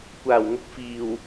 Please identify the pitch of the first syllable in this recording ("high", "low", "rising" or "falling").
low